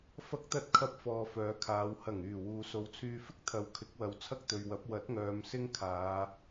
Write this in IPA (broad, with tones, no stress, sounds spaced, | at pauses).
f ɐ˥ k̚ t̪ ɐ˥ t̚ kʰ ɐ˥ p̚ f ɔː˧ f œː˨˧ kʰ aː˨˧ w h ɐ˨˩ ŋ yː˨˩ w uː˨ s o˨˧ w t͡sʰ yː˧ f ɪ˥ k̚ t̪ʰ ɐ˨˧ w kʰ ɪ˨˥ k̚ w ɐ˨ w t͡sʰ ɐ˥ k̚ t̪ ɵ˨ ɥ w ɐ˨˥ p̚ w ɐ˨˥ t̚ ŋ œː˨ m s ɪ˥ ŋ kʰ aː˨˧